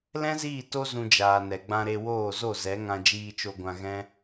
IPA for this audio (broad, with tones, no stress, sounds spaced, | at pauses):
l ɛ̃˦ z iː˦˨ t o˦ z ũ˧ d͡ʒ aː˨ n ɛ˨ ɡ͡b ã˧ ɾ e˧ w oː˦˨ z o˦˨ z ɛ˨˦ ŋ ã˧ d͡ʒ iː˧ t͡ʃ o˧ ɡʷ ã˧ ɣ ɛ̃˦